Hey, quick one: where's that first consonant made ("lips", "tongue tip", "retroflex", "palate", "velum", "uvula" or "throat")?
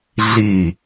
tongue tip